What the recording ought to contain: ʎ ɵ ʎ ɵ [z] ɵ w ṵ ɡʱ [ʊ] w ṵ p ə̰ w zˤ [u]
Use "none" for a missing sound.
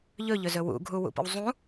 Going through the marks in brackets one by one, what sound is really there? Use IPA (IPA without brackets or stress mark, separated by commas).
z, u, ũ